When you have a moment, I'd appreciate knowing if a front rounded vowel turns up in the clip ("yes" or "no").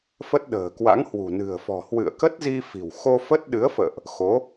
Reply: no